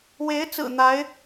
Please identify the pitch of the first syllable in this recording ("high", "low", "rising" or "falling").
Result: rising